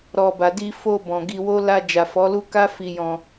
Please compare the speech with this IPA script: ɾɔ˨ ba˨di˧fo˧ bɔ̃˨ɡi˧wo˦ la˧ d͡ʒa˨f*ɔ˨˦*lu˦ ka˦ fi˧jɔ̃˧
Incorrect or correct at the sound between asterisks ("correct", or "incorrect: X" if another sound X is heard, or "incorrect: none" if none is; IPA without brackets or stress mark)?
correct